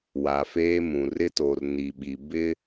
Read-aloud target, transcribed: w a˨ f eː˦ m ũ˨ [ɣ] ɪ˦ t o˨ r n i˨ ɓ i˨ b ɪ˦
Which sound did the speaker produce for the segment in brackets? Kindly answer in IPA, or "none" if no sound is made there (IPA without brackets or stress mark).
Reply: r